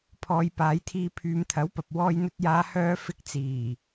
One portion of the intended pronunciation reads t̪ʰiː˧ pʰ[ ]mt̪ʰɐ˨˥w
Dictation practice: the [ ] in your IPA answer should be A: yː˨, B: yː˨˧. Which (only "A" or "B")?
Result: B